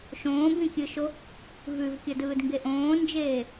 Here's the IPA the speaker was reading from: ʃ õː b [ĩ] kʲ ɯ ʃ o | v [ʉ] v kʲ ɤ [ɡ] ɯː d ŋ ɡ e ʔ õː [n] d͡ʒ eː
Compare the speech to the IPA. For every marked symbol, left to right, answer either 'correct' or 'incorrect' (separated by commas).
correct, correct, incorrect, correct